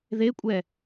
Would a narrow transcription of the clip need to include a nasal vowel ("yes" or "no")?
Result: no